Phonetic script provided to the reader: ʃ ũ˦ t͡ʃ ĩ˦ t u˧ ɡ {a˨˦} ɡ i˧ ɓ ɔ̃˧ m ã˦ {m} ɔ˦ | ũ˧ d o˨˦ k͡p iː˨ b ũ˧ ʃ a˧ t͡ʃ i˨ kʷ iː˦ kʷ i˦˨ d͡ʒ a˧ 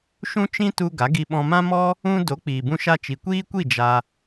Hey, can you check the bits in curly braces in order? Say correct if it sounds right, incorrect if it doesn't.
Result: correct, correct

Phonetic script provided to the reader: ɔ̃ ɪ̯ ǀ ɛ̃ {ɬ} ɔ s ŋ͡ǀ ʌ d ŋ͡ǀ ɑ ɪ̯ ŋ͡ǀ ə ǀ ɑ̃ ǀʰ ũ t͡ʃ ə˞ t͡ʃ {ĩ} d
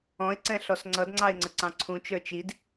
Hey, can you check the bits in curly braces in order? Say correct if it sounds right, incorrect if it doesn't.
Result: correct, incorrect: i

